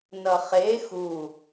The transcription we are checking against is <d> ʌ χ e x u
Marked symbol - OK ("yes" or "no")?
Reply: no